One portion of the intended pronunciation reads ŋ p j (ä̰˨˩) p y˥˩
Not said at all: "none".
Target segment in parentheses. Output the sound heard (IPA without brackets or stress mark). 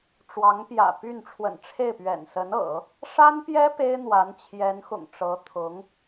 ä̰˨˩